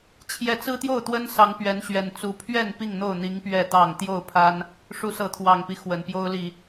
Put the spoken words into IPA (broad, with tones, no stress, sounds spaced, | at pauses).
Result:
t͡ɕʰ j ɛ˨˦ t͡s ɹ̩˦ t̪ j o˥˨ ʊ̯ t̪ w ə˦ n s ɑ˨˦ ŋ p ɥ ɛ˨˦ n ɕ ɥ ɛ˨˩ n t͡s u˨˦ pʰ ɥ ɛ˥˨ n p i˥˨ ŋ n̪ o˥˨ ʊ̯ n̪ i˨˦ ŋ p ɥ ɛ˥˨ t̪ ɑ˥˨ ŋ t̪ j o˥˨ ʊ̯ pʰ a˦ n | ʂ u˨˦ s ɤ˨˦ t̪ʰ w ɑ˨˩ ŋ p i˦ x w ə˨˩ n p j o˦ ʊ̯ l i˨